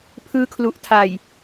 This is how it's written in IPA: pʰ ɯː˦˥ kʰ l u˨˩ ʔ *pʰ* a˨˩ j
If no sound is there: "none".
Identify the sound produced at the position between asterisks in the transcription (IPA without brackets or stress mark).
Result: tʰ